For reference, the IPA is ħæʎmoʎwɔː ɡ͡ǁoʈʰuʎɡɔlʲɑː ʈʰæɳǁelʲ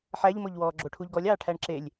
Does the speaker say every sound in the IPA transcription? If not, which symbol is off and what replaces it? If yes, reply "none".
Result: none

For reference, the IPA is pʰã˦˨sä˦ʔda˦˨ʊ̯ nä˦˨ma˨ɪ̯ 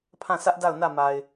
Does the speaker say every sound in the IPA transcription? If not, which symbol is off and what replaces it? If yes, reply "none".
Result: none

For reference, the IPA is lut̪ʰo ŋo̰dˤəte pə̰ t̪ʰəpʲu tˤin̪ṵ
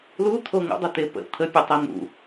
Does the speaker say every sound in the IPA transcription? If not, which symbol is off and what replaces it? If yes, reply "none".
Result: none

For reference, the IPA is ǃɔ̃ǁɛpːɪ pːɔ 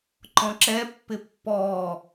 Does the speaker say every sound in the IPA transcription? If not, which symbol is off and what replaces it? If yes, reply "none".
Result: none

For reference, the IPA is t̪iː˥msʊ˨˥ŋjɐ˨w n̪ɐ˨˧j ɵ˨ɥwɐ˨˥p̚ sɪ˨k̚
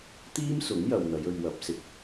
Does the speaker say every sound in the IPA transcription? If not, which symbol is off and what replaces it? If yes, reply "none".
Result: none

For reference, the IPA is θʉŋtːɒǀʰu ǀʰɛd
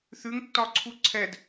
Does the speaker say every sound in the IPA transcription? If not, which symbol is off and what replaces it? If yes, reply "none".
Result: none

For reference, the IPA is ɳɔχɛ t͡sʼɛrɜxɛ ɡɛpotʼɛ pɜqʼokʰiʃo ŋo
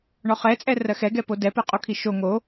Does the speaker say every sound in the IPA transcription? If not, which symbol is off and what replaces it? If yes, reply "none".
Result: tʼ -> d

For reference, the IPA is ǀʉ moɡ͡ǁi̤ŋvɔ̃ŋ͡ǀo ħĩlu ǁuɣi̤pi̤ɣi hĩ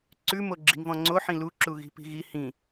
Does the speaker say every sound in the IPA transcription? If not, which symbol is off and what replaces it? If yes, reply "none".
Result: none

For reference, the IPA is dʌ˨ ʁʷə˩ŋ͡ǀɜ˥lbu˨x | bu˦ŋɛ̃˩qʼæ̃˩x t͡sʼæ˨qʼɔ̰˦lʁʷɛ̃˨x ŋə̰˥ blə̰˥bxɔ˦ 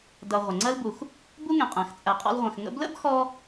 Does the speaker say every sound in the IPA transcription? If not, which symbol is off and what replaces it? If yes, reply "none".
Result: none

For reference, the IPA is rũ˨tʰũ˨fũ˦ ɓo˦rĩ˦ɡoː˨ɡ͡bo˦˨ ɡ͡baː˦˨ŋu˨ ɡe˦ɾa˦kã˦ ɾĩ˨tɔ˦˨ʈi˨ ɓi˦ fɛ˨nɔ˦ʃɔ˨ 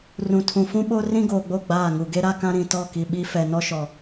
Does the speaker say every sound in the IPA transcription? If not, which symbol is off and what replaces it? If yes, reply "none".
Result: ʈ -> k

